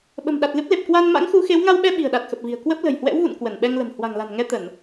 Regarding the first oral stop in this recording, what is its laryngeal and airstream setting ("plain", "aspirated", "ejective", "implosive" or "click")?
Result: implosive